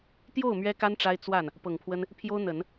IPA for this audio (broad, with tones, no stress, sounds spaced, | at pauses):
t̪ j o˥˩ ʊ̯ m ɥ ɛ˥ k a˥ n ʈ͡ʂ a˥ ɪ̯ t͡s w a˥˩ n | p ɤ˨˩ ŋ pʰ w ə˥ n | pʰ j o˥ ʊ̯ n̪ ə˨˩˦ n